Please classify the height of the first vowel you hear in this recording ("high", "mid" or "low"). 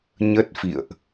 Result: mid